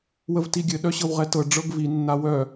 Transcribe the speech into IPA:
wəvtiɡʲɘ ɗœɕɤwʁɛtɤ ɖ͡ʐɤɡvi nːawœ

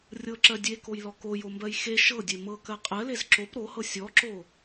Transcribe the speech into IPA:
rʲɤǁɜ dʲekojlɔ kojombɜj xe ʃɤdʲe mɤkɜ qʼɜlez ǁop ɾohɤ sʲɔǁo

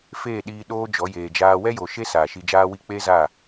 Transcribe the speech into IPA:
feː˦˨ɗiː˧ ɗoː˦d͡ʒɔ˨˦ jeː˨d͡ʒaː˧ wɛ˦jo˨ʃe˦ saː˨ʃi˧d͡ʒaː˦wi˦ k͡pe˦za˦˨

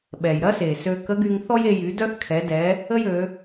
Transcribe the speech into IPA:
ɓɛ˩jɾɐ˥se˩ sø˧kə˧˥ ɡy˧ŋθɔ˥je˧jy˩˧ dœ˥θkʰɛ˩˧ dɛ˩˧ | ə˥jø˩˧

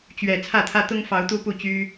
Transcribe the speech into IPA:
t͡ɕɥɛ˨˩ t͡sʰä˥˨t̪ʰä˦ t̪ʊ˦ŋfɑ˨˦ʊ̯ t̪u˦pu˥˨t͡ɕy˦

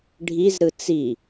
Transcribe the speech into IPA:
ɖʱizɾɯ t͡si

